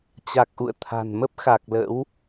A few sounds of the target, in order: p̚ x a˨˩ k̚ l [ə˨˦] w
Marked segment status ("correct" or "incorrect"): incorrect